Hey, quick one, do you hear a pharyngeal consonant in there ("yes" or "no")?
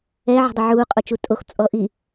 yes